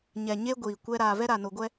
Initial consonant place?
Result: palatal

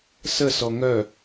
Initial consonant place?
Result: alveolar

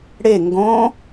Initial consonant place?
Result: retroflex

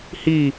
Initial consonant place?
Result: glottal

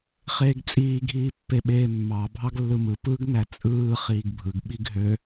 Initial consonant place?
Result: uvular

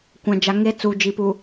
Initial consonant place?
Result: velar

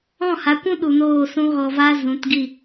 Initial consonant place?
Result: glottal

